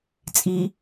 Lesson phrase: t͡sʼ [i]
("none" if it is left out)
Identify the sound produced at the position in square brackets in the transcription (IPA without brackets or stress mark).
i